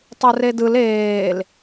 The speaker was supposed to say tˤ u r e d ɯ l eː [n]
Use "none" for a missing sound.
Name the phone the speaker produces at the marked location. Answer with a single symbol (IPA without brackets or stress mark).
l